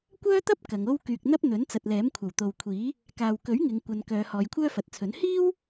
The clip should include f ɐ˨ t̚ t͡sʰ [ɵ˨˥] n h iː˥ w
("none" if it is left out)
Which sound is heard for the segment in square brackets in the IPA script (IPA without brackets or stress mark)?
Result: ɵ˨˥